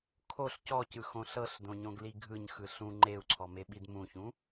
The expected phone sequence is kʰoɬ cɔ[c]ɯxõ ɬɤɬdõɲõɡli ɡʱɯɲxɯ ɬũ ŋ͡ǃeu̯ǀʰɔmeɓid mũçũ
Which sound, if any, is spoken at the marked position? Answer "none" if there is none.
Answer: c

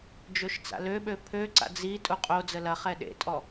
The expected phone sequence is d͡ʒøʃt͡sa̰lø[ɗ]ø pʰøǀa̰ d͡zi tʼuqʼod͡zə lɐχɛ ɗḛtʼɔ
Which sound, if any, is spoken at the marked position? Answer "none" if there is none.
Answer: ɓ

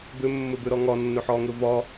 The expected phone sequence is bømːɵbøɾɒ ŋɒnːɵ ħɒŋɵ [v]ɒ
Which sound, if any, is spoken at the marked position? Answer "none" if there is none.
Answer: v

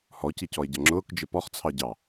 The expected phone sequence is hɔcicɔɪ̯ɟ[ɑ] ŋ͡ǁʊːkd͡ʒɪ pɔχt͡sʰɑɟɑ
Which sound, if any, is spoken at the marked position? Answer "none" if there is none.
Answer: ʌ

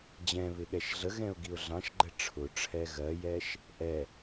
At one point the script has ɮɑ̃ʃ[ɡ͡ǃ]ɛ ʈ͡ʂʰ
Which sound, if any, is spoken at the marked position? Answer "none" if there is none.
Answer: ɡ͡ǃ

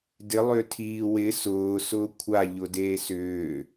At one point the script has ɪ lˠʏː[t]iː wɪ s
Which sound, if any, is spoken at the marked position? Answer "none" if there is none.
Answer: tʰ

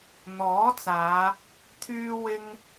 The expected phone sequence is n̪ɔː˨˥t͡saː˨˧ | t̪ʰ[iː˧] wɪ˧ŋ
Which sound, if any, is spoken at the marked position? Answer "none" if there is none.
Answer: yː˧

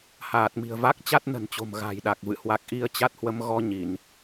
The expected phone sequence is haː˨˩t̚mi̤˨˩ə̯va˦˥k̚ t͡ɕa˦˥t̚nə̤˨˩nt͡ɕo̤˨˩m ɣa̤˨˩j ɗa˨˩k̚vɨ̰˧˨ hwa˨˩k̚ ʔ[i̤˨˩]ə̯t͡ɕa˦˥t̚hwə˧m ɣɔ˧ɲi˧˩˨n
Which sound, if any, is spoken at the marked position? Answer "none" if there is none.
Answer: i˧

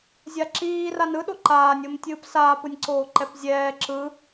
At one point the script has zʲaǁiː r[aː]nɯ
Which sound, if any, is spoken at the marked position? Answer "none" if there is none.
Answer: a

